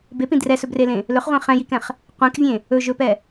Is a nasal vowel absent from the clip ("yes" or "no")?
no